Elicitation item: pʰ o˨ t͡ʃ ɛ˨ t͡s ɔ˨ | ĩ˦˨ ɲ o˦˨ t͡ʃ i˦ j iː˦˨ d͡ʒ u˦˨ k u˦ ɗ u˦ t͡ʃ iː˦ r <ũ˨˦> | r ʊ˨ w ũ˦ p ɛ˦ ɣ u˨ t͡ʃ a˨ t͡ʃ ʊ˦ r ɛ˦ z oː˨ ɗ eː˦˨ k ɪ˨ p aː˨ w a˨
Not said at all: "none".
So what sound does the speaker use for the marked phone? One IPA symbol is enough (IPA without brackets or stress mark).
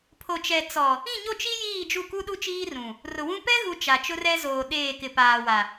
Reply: ũ˨